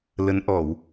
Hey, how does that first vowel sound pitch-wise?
rising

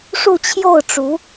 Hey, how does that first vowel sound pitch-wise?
falling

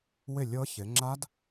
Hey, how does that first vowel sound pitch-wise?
falling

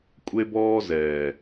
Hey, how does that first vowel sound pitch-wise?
high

